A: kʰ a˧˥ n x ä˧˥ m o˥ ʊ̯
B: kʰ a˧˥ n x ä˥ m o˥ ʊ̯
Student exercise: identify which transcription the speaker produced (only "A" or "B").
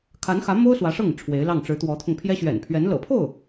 A